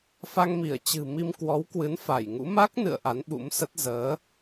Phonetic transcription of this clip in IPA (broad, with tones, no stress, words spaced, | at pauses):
fa˧ŋmi˧˩ə̯ t͡ɕɨ̤˨˩mi˧m kwɔ˨˦wkwɨ˨˦nfa˧˩jŋṵ˧˥ ma˦˥k̚nɨ̰˧˨ə̯ ʔa˨˦nɓṵ˧˥msə˦˥t̚ zəː˨˦